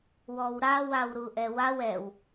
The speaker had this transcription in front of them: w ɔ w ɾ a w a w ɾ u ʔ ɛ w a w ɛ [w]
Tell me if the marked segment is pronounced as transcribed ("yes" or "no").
yes